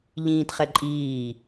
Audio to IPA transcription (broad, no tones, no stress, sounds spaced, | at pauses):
ʎ ĩː t χ ɛ ǃʼ iː